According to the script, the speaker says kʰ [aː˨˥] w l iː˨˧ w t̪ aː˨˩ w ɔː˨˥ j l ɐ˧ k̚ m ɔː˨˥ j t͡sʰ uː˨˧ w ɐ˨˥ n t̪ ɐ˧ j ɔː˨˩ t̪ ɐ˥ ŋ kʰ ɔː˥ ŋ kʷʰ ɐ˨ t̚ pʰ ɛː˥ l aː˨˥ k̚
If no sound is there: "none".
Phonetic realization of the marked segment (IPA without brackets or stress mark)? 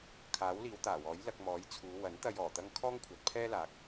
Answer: aː˨˥